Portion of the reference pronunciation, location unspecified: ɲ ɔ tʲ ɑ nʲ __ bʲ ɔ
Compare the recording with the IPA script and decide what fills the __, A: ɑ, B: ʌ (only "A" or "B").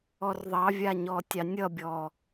B